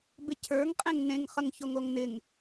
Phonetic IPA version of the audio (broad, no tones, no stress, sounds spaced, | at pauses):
b ɪ cʰ ə˞ ŋ qʼ ẽ ŋ n ẽ ŋ χ ə ŋ ç o ŋ o ŋ n ɪ ŋ